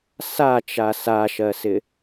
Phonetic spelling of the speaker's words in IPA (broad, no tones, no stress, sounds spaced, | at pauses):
s a t͡ʃ a s a ʃ ɜ s ɪ